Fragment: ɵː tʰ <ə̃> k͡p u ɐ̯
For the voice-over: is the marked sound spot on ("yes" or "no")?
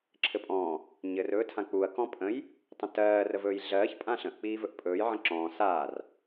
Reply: no